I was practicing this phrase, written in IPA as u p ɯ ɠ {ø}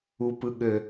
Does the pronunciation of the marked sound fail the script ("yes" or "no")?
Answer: no